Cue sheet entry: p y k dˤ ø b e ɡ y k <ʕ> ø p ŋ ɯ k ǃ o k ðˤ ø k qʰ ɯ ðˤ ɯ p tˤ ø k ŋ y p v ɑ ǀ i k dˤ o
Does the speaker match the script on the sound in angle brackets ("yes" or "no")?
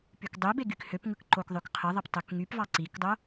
no